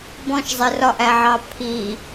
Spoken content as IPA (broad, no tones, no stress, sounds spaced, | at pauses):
b ɔ̃ ʃ zˤ ɪ r ɒ ʔ æ ʕ ɑ pʰ i